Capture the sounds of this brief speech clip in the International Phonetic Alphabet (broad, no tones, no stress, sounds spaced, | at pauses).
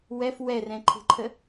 w ɛ f w ɛ r ɛ̃ ǃʰ e̤ ǃʰ ə